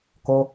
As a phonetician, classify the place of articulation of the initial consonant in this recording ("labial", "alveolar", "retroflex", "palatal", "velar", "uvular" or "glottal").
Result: velar